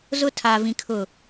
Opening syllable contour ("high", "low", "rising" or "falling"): high